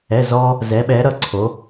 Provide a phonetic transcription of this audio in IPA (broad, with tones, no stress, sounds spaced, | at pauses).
ɛ˩˧˩ z ɔ˧ | z ɛ˩˧ ɓ ɛ˩˧ ɾ ʌ˧˩ ǀʰ o˩˧